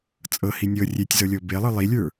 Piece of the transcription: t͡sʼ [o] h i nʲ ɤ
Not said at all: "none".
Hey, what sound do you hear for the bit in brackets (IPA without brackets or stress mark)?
ɤ